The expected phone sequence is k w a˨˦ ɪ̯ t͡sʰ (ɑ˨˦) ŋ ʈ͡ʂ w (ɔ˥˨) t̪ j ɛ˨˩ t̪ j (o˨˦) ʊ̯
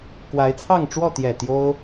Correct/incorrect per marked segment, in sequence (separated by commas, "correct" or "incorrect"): incorrect, correct, incorrect